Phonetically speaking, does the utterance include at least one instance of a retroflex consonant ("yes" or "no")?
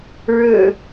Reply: yes